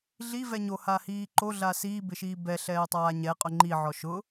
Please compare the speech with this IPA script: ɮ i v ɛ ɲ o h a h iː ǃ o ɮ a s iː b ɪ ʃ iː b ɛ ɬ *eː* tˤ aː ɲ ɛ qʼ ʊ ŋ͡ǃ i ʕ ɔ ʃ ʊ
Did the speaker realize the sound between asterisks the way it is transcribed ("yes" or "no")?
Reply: no